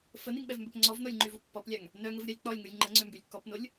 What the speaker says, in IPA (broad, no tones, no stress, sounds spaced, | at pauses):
f ə n i ŋ ɓ ɛ v m b œ p ŋ͡ǀ ɔ v n o lʲ ŋ͡ǃ y v u pː ɔ p lʲ a ŋ | n œ ŋ ə v ɾʲ a lʲ k͡p ɔ lʲ ŋ u lʲ ŋ͡ǃ ə ŋ͡ǀ ø m b y lʲ k ɔ p n o lʲ